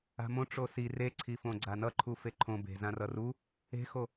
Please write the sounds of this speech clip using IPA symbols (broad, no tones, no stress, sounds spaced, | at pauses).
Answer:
a̤ m õ ʈ͡ʂ o s i r e ǀʰ i f õ ɡ͡ǀ a n ʌ ǃʰ u f e ǃʰ õ b e̤ z ã r ʌ r u | e̤ x o